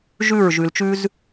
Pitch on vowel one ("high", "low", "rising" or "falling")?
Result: falling